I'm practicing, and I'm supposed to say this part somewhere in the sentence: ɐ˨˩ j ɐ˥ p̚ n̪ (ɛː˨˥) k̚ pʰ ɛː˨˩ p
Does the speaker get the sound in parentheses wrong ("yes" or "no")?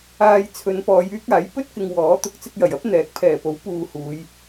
no